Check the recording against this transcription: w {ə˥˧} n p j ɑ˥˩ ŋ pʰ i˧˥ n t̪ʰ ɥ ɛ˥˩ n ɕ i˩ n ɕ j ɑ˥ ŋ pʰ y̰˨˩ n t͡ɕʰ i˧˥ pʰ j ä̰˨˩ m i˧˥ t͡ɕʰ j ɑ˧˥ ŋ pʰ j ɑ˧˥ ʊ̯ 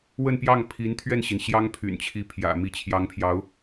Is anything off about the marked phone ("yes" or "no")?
no